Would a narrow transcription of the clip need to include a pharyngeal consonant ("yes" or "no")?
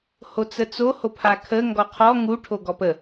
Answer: no